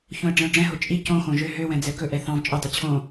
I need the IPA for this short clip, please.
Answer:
ç õ ə̯ ɖ͡ʐ ɛ̃ ʊ̯ ɖ͡ʐ ɛ̃ ɦ o t͡ʃʼ i c õ x õ ʒ ø ɦ ø w ɛ̃ d͡z ɛ k ɵ ʔ ɛ θ ɑ̃ v t͡ʃʼ ɵ dˤ i t͡ɕʰ õ

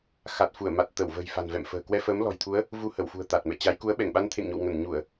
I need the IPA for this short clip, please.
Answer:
x a˨˩ t̚ f u˧˩ ə̯ m a˨˩ t̚ t̪ ə˧˩ w v ə̤ː˨˩ j f a̤˨˩ n v ɛ̰˧˨ m f ə̤ː˨˩ k w ɛ˧ f əː˨˦ m l ɔ̤˨˩ j t̪ʰ u˨˦ ə̯ | v u˧ h ə˧˩ w f ṳ˨˩ ə̯ t̪ a˨˩ t̚ m ɛ̰˧˨ t͡ɕ a˨˦ j k u˨˦ ə̯ ɓ ɛ˧˩ ŋ ɓ a˧ n t̪ʰ ḛ˧˨ ŋ ɲ o̰˧˨ w ŋ ə˧˩ n ɲ u˧˩˨ ə̯

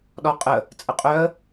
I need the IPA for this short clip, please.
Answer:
ɗ ɔ qʼ ə | t͡sʼ ə qʼ œ ə̯

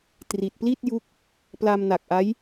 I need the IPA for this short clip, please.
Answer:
t r i˨˩ t̚ p l i˥˩ t̚ j u˦˥ k̚ | p l a˧ m n a˨˩ k̚ ʔ a˦˥ j

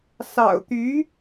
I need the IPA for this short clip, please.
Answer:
s ɑ̰˨˩ ʊ̯ t̪ y˧˥

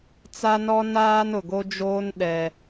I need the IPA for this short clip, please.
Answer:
t͡s a˦ n ɔ˦ n aː˦ n ʊ˨ ɡ o˦ d͡ʒ oː˦ n ɗ ɛ˦

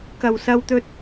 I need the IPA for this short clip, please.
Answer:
k ɐ˨ w s ɐ˧ w t̪ ɵ˧ t̚

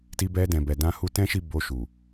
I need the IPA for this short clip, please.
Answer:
t i˧ b ɛ˧ d ɛ̃˨ b ɛ˨ d ã˧ h u˧ t ɛ̃˦ ʃ i˦˨ b o˧ ʃ u˨

